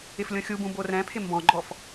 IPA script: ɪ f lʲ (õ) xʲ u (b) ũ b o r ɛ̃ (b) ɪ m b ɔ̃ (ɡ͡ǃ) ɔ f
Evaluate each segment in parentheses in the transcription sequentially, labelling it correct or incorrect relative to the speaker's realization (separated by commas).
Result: correct, correct, incorrect, correct